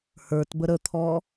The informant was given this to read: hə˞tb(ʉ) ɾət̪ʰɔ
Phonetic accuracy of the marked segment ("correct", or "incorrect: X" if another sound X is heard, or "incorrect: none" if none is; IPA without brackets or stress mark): incorrect: ə